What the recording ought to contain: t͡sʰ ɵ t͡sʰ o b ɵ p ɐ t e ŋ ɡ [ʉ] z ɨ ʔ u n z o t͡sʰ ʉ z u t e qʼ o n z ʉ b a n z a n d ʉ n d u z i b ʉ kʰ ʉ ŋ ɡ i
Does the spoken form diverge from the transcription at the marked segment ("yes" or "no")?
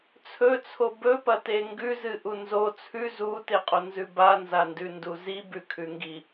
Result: no